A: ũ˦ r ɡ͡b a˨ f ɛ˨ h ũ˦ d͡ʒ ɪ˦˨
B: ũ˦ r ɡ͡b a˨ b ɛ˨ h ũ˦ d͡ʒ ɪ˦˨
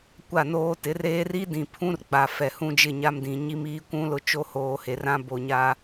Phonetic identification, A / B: A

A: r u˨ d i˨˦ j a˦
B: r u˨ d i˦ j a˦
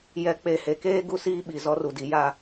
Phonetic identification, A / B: A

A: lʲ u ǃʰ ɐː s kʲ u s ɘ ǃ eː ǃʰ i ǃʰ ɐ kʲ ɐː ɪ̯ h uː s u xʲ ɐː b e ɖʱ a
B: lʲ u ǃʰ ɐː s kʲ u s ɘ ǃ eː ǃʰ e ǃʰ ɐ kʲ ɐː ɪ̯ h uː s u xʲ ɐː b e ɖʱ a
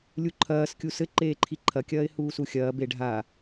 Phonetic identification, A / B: A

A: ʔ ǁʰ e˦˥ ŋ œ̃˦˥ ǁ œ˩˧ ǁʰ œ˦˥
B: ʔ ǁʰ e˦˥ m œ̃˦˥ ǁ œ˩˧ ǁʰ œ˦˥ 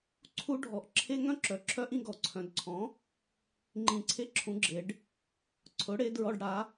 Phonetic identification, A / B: A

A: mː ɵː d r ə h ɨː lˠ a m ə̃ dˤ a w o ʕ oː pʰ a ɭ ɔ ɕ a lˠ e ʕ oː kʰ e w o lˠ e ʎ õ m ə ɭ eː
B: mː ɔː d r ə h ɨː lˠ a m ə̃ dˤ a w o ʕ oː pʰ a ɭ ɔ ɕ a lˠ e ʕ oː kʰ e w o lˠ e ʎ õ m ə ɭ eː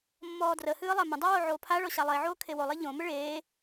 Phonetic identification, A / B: B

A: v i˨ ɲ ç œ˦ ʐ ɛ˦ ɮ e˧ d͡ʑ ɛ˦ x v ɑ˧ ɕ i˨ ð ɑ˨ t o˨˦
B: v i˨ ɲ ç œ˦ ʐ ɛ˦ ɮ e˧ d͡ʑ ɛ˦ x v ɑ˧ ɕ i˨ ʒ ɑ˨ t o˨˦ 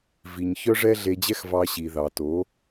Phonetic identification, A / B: A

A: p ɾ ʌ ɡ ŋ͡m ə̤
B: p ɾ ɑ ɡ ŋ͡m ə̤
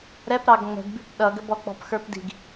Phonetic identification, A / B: B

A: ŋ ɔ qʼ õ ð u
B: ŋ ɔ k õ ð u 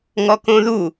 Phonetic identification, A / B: B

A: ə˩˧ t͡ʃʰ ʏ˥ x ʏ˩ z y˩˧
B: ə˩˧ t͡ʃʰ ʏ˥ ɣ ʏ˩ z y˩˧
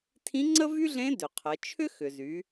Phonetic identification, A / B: A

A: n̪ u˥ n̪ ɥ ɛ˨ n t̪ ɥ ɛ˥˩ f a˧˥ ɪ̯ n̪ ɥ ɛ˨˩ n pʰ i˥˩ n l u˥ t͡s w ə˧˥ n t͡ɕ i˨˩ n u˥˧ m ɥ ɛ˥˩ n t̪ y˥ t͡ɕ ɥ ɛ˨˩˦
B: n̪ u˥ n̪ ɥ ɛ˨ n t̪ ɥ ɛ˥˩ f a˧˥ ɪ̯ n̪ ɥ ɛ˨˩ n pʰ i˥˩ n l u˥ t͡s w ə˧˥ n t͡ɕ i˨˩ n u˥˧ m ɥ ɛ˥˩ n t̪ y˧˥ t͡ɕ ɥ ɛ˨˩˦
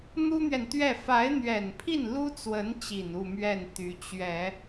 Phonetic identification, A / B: B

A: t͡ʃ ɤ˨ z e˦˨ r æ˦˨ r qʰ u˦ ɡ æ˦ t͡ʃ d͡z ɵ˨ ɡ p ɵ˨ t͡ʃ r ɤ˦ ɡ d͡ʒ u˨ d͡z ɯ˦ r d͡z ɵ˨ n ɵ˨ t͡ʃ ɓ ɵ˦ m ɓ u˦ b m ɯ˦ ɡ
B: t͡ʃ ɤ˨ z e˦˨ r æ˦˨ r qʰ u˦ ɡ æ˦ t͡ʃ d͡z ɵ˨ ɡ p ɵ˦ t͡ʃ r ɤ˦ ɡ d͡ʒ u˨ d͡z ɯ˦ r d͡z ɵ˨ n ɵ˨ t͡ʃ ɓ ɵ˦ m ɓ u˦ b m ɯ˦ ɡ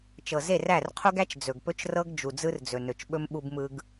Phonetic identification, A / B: B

